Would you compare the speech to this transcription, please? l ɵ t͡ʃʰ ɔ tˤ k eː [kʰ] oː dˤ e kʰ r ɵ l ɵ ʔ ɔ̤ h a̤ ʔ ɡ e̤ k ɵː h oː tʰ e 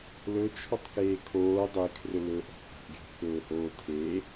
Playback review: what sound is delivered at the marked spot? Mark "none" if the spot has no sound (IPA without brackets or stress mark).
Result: kʰ